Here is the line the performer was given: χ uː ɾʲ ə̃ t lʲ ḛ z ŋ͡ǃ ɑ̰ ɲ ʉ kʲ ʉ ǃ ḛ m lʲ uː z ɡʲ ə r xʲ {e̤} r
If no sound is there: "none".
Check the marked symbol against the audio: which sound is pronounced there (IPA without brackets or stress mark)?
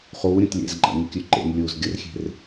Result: e̤